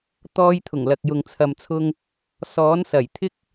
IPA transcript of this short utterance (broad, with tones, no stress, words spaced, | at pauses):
t̪ɔː˧jt̪ʰʊ˨˩ŋlɐ˨k̚jʊ˨ŋ t͡sʰɐ˨mt͡sʰʊ˧ŋ | sɔː˨˥nsɐ˨˩j t̪ʰɪ˥k̚